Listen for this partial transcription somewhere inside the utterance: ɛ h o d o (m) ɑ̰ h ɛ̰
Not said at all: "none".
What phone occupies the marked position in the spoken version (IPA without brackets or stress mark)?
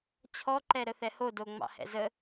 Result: ŋ͡m